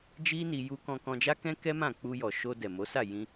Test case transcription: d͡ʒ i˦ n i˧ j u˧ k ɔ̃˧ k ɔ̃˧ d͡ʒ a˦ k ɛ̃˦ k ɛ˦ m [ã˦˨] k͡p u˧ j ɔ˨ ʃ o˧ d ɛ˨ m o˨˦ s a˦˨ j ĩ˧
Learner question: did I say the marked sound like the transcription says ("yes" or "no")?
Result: yes